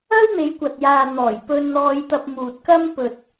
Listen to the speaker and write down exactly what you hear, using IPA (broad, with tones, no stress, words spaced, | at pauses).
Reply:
ɐ˥wn̪e˨˧jkʷɐ˨t̚jaː˨ n̪ɔː˨˩j pɵ˧nn̪ɔː˧jt̪ɐ˧p̚ muː˨t̚kɐ˥m pɵ˨t̚